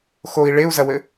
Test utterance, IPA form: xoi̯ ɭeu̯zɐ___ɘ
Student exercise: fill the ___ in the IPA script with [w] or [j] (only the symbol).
w